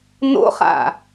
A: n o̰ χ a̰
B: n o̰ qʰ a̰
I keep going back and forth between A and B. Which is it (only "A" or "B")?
A